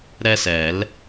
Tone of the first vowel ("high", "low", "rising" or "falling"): high